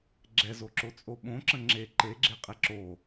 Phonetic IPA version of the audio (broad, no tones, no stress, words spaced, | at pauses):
ɡ͡ǁɛzoǁo t͡sʼoɓõǁə̃ ŋ͡ǁe ǃeɡ͡ǁe qʼeǁo